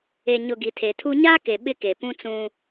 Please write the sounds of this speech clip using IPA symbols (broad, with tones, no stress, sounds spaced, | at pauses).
e˨ ɲ ʊ˨ ɡ i˨ tʰ e˨ tʰ u˦ ɲ aː˦ k e˨ ɓ ɪ˦ k e˨ p ũ˦ t͡s ũ˦